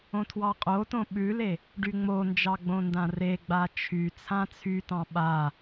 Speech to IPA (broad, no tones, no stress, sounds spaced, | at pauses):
õ tʰ w ɑ qʼ o t õ ɓ ʉ l e | ɖ y ŋ͡m o n d͡ʒ ɑ ɡ͡b õ n d ã r e ɡ͡b a t͡ʃʰ y t͡sʰ ã t͡sʰ y t ɑ̃ ɓ a